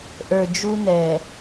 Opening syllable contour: low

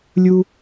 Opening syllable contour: low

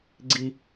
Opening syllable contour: high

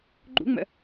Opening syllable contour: high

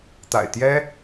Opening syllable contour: low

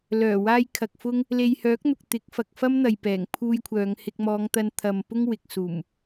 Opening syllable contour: low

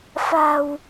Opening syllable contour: low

